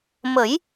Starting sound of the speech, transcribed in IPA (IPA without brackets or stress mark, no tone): m